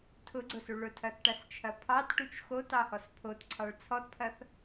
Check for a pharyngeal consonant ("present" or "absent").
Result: absent